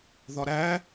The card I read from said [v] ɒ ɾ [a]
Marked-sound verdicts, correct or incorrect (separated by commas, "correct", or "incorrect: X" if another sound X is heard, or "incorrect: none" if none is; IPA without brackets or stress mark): incorrect: ð, incorrect: æ